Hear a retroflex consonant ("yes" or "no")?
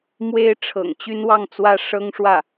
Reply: yes